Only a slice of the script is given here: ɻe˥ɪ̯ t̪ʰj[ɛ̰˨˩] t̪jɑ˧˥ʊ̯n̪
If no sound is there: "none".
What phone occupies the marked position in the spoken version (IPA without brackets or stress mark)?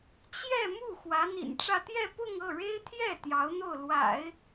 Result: ɛ˥˩